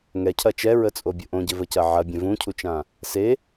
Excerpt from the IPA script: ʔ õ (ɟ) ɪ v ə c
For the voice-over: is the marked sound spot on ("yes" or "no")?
yes